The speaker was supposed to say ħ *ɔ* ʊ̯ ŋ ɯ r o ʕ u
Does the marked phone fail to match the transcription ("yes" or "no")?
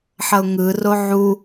yes